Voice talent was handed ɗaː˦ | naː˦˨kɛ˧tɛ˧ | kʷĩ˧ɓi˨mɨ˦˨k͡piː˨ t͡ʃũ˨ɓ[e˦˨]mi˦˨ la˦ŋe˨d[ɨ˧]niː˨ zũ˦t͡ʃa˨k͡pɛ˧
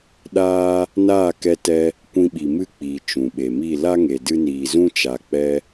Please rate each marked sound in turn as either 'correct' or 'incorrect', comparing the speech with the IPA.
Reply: incorrect: e˨, correct

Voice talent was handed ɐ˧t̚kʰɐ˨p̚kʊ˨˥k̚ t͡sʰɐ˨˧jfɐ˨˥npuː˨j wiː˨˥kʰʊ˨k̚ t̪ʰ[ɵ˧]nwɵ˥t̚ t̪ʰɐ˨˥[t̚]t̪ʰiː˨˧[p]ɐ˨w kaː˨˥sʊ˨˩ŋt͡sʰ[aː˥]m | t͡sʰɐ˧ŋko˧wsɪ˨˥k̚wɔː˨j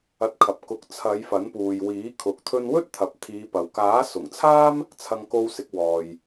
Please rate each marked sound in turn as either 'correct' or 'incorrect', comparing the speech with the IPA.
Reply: correct, incorrect: p̚, correct, correct

